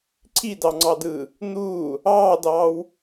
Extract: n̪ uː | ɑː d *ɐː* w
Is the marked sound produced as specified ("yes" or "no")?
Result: no